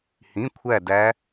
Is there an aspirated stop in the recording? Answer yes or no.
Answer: yes